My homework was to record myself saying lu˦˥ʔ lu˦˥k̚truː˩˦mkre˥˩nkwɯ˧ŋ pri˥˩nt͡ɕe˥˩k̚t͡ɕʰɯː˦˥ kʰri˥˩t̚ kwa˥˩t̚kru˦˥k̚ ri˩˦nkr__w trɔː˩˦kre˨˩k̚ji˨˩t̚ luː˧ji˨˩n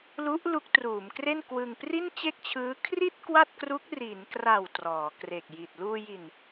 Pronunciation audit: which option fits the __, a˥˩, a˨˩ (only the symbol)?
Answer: a˨˩